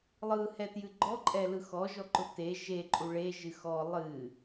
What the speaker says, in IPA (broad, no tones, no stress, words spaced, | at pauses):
lˠɯhɛtjɨ ɡ͡ǃɔǃʼɛlɯ xɔʒɔǃʊ te ʒeǃʼu ɭeʒɨ xɔ lˠɨ